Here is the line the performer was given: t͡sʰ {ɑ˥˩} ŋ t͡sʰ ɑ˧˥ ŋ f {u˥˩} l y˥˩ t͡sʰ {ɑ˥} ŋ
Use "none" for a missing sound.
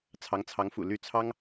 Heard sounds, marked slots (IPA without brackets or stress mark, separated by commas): ɑ˧˥, ṵ˨˩, ɑ˥